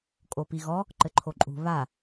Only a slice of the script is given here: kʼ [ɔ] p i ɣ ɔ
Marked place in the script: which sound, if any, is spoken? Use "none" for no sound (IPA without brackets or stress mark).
o